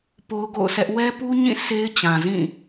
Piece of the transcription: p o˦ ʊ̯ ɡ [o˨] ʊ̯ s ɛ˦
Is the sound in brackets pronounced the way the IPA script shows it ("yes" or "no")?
no